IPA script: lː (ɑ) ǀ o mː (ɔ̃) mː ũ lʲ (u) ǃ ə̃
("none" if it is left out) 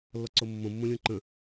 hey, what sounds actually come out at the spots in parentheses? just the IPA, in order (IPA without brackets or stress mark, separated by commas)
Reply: ɔ, õ, ũ